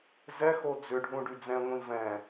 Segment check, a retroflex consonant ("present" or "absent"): present